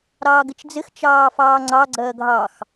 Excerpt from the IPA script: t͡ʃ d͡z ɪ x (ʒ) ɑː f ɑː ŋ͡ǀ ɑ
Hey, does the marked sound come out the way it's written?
no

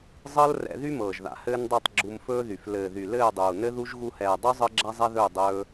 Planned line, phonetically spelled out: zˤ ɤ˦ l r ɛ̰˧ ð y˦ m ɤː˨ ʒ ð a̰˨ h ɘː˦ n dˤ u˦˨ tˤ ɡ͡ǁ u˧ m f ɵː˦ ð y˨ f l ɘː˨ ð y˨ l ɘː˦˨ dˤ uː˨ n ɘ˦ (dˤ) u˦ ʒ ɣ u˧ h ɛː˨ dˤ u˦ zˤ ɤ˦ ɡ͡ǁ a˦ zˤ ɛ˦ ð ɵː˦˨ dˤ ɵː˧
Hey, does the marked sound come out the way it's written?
no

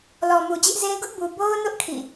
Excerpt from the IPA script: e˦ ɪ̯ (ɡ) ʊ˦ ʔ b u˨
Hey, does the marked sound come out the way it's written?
yes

